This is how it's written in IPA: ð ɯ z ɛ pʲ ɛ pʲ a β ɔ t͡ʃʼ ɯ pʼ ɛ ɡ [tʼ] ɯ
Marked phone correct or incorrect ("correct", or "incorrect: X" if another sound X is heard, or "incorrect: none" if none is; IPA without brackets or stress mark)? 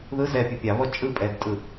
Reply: correct